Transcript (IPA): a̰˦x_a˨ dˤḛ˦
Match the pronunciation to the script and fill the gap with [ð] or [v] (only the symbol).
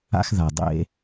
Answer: ð